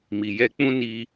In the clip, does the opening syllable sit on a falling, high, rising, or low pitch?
low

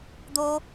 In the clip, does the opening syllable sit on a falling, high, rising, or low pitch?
high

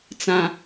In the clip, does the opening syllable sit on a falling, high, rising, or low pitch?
low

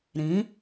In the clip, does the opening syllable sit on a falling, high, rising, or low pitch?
rising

